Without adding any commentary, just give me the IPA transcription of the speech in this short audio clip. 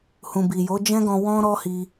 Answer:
hũ˨bi˨jo˨˦ d͡ʒɛ̃˦ɡɔ̃˧ wɔ̃˧ ɾɔ˦hi˧

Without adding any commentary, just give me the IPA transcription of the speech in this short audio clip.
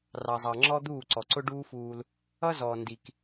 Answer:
rɑ˩zˤɑ˩ŋ͡ǁɔ˥ d̪uː˥˩ǀɔ˩ǀʊ˥ ɖuː˥fuː˧l | ʌ˥zɔː˩ ndi˩k

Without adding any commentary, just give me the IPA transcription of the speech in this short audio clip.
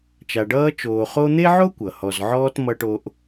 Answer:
t͡ʃa˨ɖʌː˦t͡ʃoː˨ χo˦n̪e˥ʕo˥ kʷʌ˩hɔ˨zʕɔː˥t mʌ˥ʈo˥ʔ

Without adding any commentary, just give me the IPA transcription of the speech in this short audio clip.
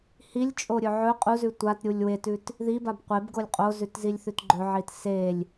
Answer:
hilʲt͡ʃʼoɾʲɵ ʕɵ qʼuzʉ tʷatɾʲulʲ wetʉt | ðibab qʷebɡolʲ qʼozʉtzilʲθʉt ɡ͡ǃɵʕit selʲ

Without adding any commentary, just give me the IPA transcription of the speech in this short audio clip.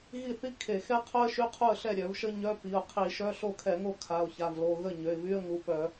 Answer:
ɣi˥˩θi˥ kʰe˧˩˧xɛ˥qʰœ˥ə̯ ʃy˧˥˧qʰu˥˩ə̯ɬɛ˥˩ ɾʲœ˧˩˧vʃə˥ ɲœ˧˥˧pi˩˧˩ʊ̯ qʰi˧˩˧ʃœ˧˥˧ ɬo˥˩kʰɛ˧˩˧ŋo˥˩ kʰa˩˧˩ʊ̯ça˩˧˩vlo˩˧˩ ɣə˥˩ ɲø˩˧˩ɪ̯vy˧˥˧ə̯ ŋu˩˧˩pœ˧˩˧

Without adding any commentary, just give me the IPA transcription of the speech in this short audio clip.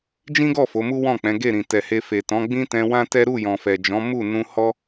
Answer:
d͡ʒĩ˦ɡɔ˦˨ fo˨˦mu˦wɔ̃˦˨k͡pɛ̃˨˦ ɡe˦˨ɾĩ˨tɛ˨he˧ fe˨tɔ̃˨˦ɡ͡bĩ˦tɛ̃˧ wã˦tɛ˦ ɾu˦˨jɔ̃˨fɛ˨d͡ʒɔ̃˨˦ mu˦˨ nũ˧hɔ˦

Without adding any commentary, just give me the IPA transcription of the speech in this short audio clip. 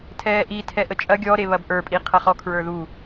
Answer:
tʰɛːʔi tʰɛʔət͡ʃʼɐ ɡʲɔɾe βɐbʔə˞pʼi qʰɐχɔ kʰɹə˞ðu

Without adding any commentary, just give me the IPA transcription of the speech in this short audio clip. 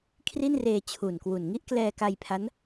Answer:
kʰri˥˩nreː˧t͡ɕʰu˨˩nkwu˨˩n ŋi˥˩ʔklɛː˧ka˧jpʰa˦˥n

